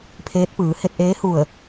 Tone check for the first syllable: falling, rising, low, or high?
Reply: rising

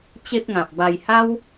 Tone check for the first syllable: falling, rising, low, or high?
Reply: high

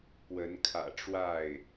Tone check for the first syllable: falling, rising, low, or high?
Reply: rising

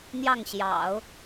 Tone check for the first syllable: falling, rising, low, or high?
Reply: falling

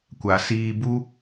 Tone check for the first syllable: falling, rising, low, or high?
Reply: low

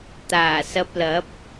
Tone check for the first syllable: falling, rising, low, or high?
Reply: low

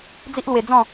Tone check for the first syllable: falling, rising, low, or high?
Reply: high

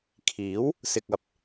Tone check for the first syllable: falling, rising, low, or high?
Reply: rising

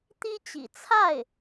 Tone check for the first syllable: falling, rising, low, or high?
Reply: high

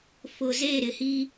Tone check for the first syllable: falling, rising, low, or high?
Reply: low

